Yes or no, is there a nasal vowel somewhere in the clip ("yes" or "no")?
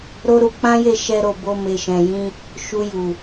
yes